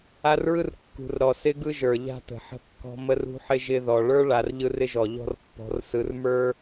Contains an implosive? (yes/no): no